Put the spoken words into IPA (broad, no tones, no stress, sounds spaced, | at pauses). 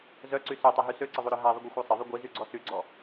z œ ǀ y s œ tˤ e ɦ y s ø ǀ ə ðˤ u ɾ œ ɦ a ðˤ ə ɡʷ œ xʷ a sˤ ə ðˤ y ɡʷ i z y ɡ͡ǀ ɔ s y ɡ͡ǀ ɔ